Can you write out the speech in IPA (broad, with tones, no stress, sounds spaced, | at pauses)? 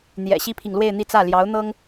n̪ j ɛ̰˨˩ ɕ i˥ pʰ i˨ ŋ l w e˥˧ ɪ̯ n̪ i˥˧ t͡s ä˥˩ l j ɑ˧˥ ʊ̯ n̪ ɤ˥ ŋ